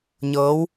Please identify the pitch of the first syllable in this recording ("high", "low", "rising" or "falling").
rising